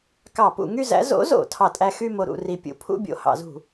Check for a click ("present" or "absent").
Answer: absent